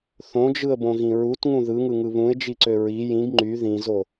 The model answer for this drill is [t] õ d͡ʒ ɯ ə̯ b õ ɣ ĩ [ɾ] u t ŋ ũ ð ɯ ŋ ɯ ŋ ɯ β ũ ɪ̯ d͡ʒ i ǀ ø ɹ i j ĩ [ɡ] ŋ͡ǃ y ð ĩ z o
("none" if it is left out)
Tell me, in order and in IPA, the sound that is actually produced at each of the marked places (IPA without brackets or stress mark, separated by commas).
θ, ɹ, ɡ